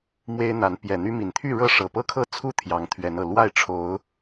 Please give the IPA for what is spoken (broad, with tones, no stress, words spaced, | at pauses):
mwe˦ɪ̯n̪a˨˦n pjɛ˨˩n̪y˦mi˨˩n t̪ʰy˥˨ɻɤ˥˨ʂɤ˨˩ pɤ˥˨kʰɤ˥˨t͡sʰu˥˨ t̪ʰjɑ˨˦ŋt̪ʰɥɛ˨˦nɤ˨˩ lwa˥˨ɪ̯ʈ͡ʂʰo˨˦ʊ̯